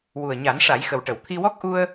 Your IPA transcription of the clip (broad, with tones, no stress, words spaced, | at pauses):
wu˨˩ə̯ɲa˨˩˦nʂa˨˩˦jxə˨˩w ʈə˨˩˨wt̪ʰi˧wɔ˦˥k̚ ʔu˧ə̯